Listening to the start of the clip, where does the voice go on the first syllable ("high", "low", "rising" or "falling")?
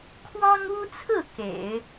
high